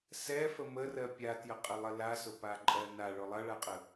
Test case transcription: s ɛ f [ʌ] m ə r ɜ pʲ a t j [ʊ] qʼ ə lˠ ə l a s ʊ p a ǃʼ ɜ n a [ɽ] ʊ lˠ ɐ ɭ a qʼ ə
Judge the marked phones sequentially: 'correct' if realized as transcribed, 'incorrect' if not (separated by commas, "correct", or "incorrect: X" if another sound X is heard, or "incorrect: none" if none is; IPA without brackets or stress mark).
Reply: incorrect: ə, incorrect: ə, incorrect: ɭ